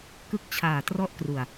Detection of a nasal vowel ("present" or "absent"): absent